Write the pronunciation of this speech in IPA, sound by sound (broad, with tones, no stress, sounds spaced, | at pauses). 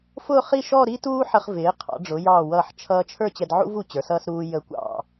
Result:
f ʊ˥˧ χ i˥˧ ʃ ɔ˥˧ ɾ i˥ t uː˥ ħ ə˧ χ v ɪː˩˧ qʰ ɑ̰˩˧ ɖ͡ʐ ʊ˩˧ j ɑː˧˩ w ʌː˧˩ ħ t͡ʃʰ ʌː˧ t͡ʃʰ ə˞˥˧ t͡ɕ ɛ˧ d ʕ ṵ˥ v u˧ t͡ɕ ə˞˩˧ s ʌː˧ s ɾ uː˧ j ə˧ kʷ ɑ̰˧˩